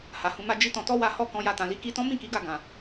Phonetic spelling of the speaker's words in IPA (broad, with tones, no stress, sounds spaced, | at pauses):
h a˨ h ũ˧ m a˧ d͡ʒ i˦ t ɔ̃˧ t ɔ˦ w a˧ h ɔ˧ k ɔ̃˧ j a˧ t ã˨ l i˨˦ k i˧ t ɔ̃˦ m ĩ˦˨ k i˨˦ ɡ a˧ ɡ ã˨